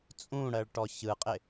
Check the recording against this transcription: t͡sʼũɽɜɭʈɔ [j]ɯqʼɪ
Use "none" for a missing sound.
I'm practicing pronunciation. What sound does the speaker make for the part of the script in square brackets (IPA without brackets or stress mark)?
ç